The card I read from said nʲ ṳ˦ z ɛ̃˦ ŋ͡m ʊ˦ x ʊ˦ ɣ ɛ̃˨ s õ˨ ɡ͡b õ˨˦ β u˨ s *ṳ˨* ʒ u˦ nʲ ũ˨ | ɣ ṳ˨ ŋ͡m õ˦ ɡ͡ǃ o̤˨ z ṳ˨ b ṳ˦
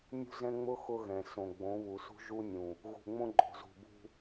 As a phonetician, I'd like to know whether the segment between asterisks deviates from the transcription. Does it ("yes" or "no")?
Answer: yes